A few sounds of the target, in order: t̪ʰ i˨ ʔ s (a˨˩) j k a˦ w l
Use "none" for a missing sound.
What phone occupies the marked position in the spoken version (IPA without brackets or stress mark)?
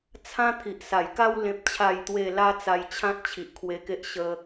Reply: a˨˩